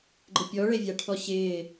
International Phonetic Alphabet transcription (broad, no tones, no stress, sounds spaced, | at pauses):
ɡ͡ǃ ɪ pʲ ɔ ɭ e vʲ a ʈʰ ɔ ɕ ɪː